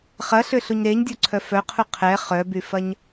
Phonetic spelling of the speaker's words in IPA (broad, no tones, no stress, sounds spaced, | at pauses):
χ ɐ ɬ ʏ ɬ u ɲ ɾ e ɲ dʲ o ǀʰ œ f œ qʰ u qʰ ɛ χ œ b y f ɐ ɲ